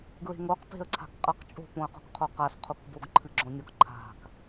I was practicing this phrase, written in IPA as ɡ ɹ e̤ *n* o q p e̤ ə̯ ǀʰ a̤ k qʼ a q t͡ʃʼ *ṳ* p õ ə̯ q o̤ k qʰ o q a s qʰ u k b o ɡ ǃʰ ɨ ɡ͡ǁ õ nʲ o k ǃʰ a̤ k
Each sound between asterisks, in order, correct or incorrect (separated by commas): incorrect, incorrect